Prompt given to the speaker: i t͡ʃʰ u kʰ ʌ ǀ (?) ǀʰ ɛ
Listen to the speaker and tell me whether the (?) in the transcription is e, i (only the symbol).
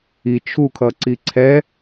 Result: i